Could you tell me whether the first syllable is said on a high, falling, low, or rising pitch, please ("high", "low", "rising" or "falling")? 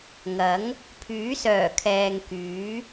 rising